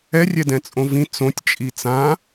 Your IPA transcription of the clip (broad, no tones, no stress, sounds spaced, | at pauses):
ɛ rʲ ɛ d ɛ̃ t͡sʼ õ v ĩ t͡s õ tʲ t͡ʃʼ i t͡s ã